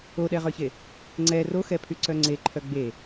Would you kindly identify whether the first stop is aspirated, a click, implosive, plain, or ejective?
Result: implosive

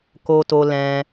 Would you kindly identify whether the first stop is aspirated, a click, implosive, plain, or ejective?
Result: plain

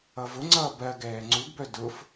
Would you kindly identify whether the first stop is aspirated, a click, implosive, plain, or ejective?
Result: click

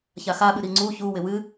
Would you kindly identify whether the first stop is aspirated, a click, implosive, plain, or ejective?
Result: implosive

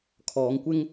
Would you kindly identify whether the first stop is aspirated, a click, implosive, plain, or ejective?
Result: aspirated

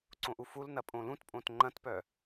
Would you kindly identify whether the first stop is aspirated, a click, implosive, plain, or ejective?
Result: click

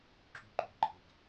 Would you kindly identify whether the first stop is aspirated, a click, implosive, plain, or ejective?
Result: click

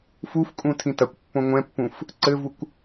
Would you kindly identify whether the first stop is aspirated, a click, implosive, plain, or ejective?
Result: ejective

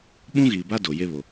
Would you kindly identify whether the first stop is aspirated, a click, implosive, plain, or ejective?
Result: implosive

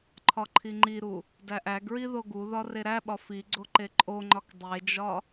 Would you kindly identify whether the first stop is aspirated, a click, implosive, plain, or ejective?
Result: click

